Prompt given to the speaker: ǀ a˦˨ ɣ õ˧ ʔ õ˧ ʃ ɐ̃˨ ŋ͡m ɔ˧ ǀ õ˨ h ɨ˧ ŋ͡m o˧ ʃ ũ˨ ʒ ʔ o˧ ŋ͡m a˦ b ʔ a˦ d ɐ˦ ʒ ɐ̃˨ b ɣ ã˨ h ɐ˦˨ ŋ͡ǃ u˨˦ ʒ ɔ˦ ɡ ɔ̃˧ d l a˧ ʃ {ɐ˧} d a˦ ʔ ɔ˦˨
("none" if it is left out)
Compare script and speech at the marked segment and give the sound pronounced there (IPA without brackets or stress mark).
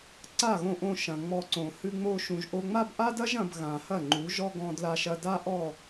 ɐ˧